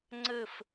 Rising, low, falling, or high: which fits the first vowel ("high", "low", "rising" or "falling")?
falling